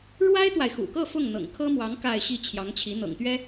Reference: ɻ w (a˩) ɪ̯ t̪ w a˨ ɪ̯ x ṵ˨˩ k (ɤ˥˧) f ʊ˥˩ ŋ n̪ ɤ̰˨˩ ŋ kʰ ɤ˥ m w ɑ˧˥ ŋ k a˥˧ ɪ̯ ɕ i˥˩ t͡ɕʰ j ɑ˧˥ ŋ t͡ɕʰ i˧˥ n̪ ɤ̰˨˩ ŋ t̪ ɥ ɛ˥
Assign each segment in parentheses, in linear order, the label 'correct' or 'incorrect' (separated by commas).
incorrect, correct